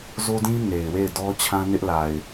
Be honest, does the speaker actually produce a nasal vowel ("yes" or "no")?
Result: yes